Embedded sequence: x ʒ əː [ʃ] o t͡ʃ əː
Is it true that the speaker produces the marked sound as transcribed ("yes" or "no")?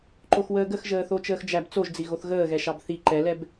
no